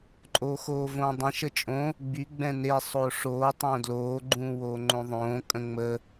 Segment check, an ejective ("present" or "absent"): present